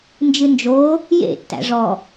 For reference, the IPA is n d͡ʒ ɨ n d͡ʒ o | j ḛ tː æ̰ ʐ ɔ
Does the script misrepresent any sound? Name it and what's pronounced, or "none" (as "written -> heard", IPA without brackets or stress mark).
none